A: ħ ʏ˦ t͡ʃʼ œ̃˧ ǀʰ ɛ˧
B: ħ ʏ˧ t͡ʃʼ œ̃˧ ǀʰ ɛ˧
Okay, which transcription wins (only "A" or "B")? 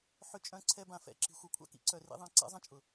B